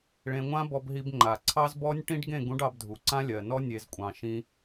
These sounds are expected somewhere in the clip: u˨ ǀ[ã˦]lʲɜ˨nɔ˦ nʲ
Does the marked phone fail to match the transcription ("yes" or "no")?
no